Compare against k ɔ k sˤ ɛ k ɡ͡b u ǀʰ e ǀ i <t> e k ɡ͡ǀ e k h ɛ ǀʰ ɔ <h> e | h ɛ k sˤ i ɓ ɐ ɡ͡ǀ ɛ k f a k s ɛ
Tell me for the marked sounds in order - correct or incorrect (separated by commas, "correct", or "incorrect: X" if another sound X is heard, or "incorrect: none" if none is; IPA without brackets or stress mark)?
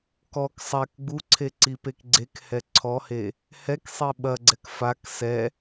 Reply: incorrect: p, correct